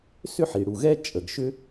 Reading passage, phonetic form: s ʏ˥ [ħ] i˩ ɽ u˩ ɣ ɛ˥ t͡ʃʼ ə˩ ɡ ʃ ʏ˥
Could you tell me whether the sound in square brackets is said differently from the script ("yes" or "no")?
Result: no